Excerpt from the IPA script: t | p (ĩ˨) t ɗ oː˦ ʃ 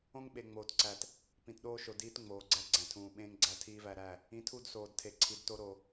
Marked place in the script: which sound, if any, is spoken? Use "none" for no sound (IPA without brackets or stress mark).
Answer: ĩ˨